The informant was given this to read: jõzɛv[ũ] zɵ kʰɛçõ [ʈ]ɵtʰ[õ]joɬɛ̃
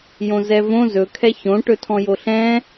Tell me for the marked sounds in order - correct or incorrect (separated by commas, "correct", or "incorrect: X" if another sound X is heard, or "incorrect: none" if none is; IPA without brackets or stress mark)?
incorrect: õ, correct, incorrect: ɔ̃